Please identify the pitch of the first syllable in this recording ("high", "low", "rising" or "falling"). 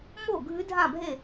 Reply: falling